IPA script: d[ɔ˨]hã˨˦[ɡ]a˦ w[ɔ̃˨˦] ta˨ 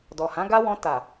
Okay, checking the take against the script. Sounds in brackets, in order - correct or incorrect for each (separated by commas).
correct, correct, incorrect